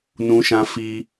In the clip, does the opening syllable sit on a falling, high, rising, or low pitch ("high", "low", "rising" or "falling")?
high